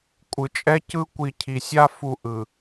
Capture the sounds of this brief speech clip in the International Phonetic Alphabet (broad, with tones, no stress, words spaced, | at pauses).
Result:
kʷʼɯ˨t͡ʃʼɛ˦cɯ˦ kʷi˨ cʰi˨sʲa˦ fu˨ ʔɯ˨